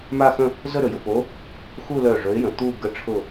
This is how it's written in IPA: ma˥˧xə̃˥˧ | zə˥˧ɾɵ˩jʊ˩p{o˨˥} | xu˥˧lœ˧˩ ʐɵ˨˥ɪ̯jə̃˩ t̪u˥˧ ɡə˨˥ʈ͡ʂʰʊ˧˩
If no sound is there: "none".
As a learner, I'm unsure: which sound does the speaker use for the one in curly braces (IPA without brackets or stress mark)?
o˨˥